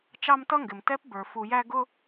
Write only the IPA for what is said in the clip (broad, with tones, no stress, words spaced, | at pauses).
t͡ʃɑ˦mtʌ˦ŋɡɪ˨m tɛ˦pbə˞˨ fu˨jæ˦ ɡʊ˦